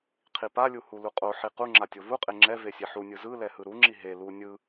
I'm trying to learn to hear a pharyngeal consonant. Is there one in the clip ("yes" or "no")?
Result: yes